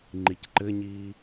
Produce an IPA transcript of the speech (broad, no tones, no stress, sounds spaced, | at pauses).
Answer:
ŋ͡ǃ i c ǃ ɘ ɲ iː